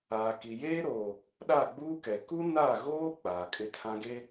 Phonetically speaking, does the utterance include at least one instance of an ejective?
yes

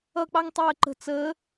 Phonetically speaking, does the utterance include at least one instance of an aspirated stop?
no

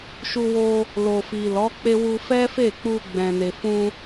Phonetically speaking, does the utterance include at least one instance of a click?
no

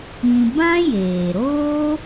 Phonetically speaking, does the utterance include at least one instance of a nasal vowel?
yes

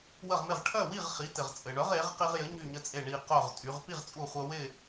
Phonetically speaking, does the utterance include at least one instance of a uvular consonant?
yes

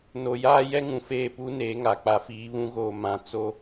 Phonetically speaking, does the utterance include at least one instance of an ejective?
no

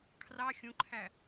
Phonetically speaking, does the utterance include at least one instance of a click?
yes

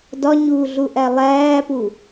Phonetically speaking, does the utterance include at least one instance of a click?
no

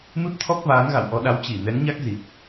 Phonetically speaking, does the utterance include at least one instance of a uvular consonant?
no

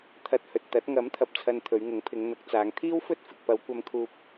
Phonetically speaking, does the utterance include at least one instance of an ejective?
no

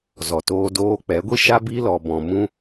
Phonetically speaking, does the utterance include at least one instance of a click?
no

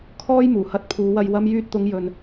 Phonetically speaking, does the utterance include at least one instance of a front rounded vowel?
yes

